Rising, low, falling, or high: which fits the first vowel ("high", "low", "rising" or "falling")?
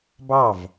falling